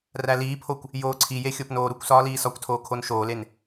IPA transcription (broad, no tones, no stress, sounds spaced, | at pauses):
r æ l iː pʰ o kʷ | j oː ǀʰ i j e xʲ o p n oː ɾ u kʷ s ɒː l iː s ɒ kʷ tʰ oː kʰ o n ʃ oː l e n